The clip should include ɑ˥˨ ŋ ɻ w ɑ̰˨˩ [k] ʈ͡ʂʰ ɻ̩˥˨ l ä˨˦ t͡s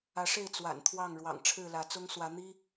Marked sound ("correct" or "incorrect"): incorrect